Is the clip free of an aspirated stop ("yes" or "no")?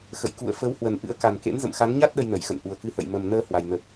yes